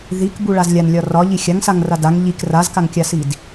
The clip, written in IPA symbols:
ð i k b u ɭ a z lʲ a n lʲ ɒ r ɒ ʎ i xʲ a ŋ s a ŋ r a d a ŋ ʎ i k r a z k a ŋ kʲ a s i d

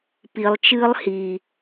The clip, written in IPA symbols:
p i lˠ t͡ʃ ɨː lˠ h i

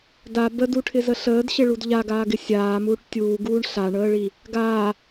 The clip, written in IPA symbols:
d a b ə d u ʈʰ ɪ z ə ɬ əː d ɕ ɪ ɭ u d ʎ a ɡ aː ɡ ɪ sʲ aː m uː ʈ tʲ uː ɡ uː ɳ ɬ a ɳ əː ɭ i | ɡ aː

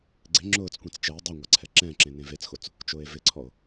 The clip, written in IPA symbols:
ɡ͡ǀ ɪ ŋ͡ǁ ʊː t͡s kʷ ẽ t͡s t͡ʃ ɛ e̯ dˤ u ŋʷ a ǀʰ ɛ ǁ ɛ̃ ǁ ẽ n ẽ v e t͡s x o t͡s | t͡ʃ ʊː e̯ v ɪ ǀʰ ɔ o̯

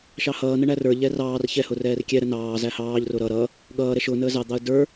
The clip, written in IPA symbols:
ʃ ɑ h ʌː n ə ɳ æ r ə˞ ʎ ɛ r ɑː r ç ɛ h ʊ r ɛː r kʲ ɛ ɾ ə n ɑː z æ h ɑː ʎ r ʊ ɾ ʌ ɾ ʌ | ɠ ʌː ɾ ɛ ʃ ʊː n əː z ɑ d̪ ɑ ə̯ d ə˞

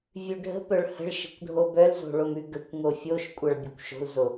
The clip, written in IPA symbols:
vʲ ʉ ɖʱ ə̤ p œ ɭ h ə̤ ɭ ʃ ə̤ kʷ ɖʱ o b œ l z o̤ ɭ o m ʉ ɡ ə kʷ ŋ o fʲ o ʃ kʷʼ ʌ ɭ bʲ ʌ kʷ ʃ o̤ l z o

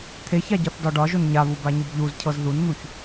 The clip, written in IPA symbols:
t̪ʰ e ç a ɟ ɒ θ d ɒ ɖ ɒ ʒ o n ɲ a β u b a ɲ u b ʎ u z cʰ ɤ z ð u n n̪ u ç

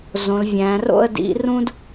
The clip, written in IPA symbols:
z õ˩˧ l vʲ æ̃ː˩˧ r o̰˥˧ ə̯ d ḭ˩˧ r ũ˥ d

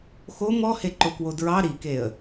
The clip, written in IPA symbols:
x o m ɔ h e ǃ o k w o d ɹ ɑ ɾ i k e ə̯

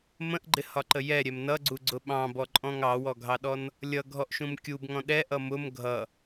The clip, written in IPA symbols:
m ə̃ ʔ ɡ͡ǃ ɪ h ɒ ǃ ə j ɛ ɾʲ ɛ m n ʌ ɡ͡ǀ u ɡ͡ǀ ʊ ɓ ɑ̃ b ɔ ǃʼ ɔ̃ ŋ ɑ w ɔ ɡʱ ɑ ɗ ɔ n | lʲ ʌ ɡʱ ɔ ʔ ʃ ũ m kʲ u b ŋ ɔ̃ ɗ ɛ ʔ ʌ m ʊ m ɡʱ ʌ

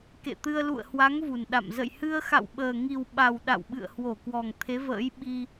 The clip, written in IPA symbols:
k ḛ˧˨ t̪ ɨ˧ ə̯ l ṵ˧˨ ə̯ h w a˨˦ ŋ v u˨˩ n ɗ a̰˧˨ m z ə̰˧˨ j h ɨ˧ ə̯ x a̰˧˨ w ɓ əː˨˩ ŋ i˨˩ w ɓ a˨˩ w ɗ a̰˧˨ w ɓ ɨ̰˧˨ ə̯ h w o˧˩ k w ɔ˨˩ ŋ t̪ʰ e˨˦ v ə̰ː˧˥ j ɓ i˧

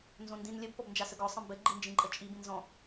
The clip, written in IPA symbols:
n z õ n d ĩ n lʲ ə b p ɔ b n d͡ʒ a s ə ɡ ɔ sˤ ə̃ m b ɘ ɡ͡ǃ i n d͡ʒ ĩ ǃʼ ə t͡ʃʼ i b ĩ n z ɔ̃

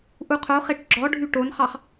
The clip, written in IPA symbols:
ʔ u qʰ o χ e ʈ ɡ͡ǁ ɔ ɖʱ y ʈ o n χ ɑ χ

